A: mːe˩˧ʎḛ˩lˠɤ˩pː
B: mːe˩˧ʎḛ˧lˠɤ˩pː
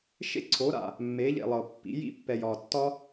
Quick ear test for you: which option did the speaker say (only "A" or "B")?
A